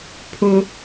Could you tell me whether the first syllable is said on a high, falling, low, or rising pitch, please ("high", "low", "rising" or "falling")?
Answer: high